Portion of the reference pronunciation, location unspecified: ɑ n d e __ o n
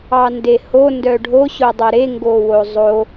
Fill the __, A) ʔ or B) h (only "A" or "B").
B